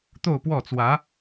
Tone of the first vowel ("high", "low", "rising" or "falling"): falling